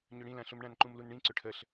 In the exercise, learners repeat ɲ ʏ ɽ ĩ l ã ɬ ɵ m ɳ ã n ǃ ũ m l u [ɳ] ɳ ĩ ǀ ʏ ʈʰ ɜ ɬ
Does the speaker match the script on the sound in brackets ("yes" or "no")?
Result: no